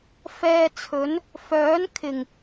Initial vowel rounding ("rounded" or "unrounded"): unrounded